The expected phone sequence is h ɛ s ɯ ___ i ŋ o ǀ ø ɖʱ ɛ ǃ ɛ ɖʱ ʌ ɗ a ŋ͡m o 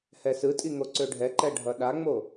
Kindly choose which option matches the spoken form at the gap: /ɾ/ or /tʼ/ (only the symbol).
tʼ